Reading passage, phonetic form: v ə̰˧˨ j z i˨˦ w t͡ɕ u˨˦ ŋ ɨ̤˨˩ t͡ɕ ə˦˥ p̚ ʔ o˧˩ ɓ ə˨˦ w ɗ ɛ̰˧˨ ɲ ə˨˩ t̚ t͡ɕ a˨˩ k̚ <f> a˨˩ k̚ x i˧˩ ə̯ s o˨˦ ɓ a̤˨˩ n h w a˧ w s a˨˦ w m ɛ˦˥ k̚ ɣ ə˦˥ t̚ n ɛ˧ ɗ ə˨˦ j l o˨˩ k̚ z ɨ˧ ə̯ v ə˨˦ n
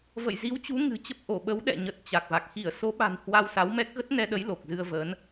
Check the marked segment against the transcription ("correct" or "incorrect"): incorrect